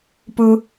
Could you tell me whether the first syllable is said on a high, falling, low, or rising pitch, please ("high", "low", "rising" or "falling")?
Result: high